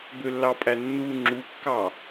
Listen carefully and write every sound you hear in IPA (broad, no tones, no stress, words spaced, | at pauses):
bølːɑpʼænːu ŋ͡ǁukːɑ